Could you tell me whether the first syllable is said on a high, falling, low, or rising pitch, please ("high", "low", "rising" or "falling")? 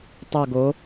falling